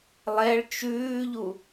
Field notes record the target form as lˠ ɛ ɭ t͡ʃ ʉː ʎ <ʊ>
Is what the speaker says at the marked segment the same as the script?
no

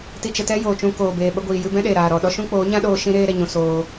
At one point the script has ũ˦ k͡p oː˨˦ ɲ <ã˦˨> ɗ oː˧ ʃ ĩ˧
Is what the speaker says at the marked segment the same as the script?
no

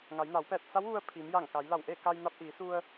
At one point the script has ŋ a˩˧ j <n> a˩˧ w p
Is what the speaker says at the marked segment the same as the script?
yes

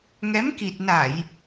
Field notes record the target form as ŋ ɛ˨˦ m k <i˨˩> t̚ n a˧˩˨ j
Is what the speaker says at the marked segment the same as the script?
yes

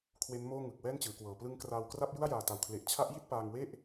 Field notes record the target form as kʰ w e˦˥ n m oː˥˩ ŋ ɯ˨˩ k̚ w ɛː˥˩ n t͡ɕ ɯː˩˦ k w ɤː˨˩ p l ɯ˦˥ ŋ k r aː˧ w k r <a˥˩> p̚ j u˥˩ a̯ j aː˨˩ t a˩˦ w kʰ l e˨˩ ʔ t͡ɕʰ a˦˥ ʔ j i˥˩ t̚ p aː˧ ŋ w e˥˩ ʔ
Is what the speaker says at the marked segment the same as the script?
yes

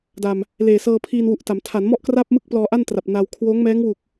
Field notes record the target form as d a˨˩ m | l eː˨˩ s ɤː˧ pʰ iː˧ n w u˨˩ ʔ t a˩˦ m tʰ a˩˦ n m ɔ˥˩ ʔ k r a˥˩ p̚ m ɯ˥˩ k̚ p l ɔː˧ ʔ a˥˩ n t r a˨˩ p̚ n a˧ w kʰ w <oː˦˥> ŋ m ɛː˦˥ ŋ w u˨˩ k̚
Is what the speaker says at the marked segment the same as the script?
yes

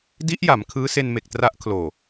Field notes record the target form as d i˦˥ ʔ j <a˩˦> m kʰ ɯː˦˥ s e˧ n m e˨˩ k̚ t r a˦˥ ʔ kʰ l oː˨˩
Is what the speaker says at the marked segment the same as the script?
yes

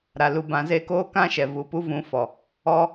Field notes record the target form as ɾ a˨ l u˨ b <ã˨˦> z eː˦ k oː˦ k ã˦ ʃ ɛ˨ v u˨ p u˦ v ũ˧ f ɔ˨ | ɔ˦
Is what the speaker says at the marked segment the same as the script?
yes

